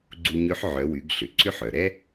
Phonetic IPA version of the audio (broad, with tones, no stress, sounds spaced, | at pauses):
ɡ͡ǀ u˧ ɲ ø˧˥ ħ ʕ œ˩˧ w y˩˧ ɡ ɬ ʏ˩ ǀ ʏ˧ ħ œ˩ ɾ ɛ˥